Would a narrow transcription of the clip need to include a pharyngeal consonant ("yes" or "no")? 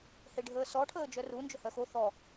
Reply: no